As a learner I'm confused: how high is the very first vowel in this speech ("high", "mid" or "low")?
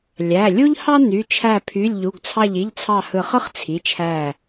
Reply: low